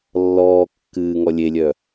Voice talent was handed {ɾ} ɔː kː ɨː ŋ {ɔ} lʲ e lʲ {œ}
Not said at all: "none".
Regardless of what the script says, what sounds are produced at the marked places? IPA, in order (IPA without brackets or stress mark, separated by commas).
lː, ɔ, œ